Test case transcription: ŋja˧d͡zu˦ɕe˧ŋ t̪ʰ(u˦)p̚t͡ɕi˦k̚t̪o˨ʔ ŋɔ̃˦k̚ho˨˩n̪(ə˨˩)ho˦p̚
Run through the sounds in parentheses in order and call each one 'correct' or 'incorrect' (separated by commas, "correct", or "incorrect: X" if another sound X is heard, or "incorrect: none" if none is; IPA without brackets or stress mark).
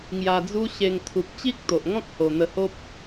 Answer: incorrect: u˨, incorrect: ə˧